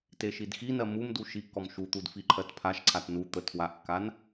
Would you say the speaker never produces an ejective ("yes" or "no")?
yes